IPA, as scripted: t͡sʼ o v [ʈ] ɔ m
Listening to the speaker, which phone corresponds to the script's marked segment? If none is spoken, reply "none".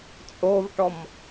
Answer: ʈ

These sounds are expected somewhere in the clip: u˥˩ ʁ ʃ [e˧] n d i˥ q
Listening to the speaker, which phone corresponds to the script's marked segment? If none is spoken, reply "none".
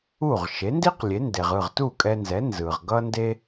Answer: e˩˥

